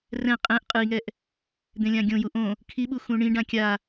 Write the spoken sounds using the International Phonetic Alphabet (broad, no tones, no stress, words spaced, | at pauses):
rɛ̃ qʼɛ̃ʔ qʼɯi̯ŋɛʔ | d̪ẽlʲãɡʲõju ʔõ | kʰiɓu xũɳĩɖã kʲa